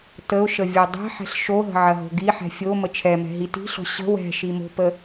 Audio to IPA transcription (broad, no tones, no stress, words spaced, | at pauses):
təʊ̯ʃə vʲodˤɛ̤ħɛ̤ɬ ʃoɦə̤ ʕɐɦo̤ɡiħɛ̤ fʲo mət͡ʃʰɛmɛ̤ ɦiti̤ɬo̤ ɕə̤ wɛ̤ ʃimo̤pə